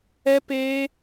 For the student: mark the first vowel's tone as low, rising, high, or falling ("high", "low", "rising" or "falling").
high